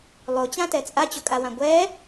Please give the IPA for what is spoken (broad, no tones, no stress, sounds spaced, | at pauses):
lˠ o t͡ɕ ã t ɛ t͡sʼ a t͡ɕ o kʼ a w ã ɡʷ ɛ